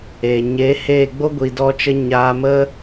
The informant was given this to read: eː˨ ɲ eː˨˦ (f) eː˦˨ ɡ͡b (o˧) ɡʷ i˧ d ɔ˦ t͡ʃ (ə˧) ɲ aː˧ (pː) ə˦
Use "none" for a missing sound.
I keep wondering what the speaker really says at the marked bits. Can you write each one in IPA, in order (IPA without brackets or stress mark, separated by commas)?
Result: h, o˦, ə˦, m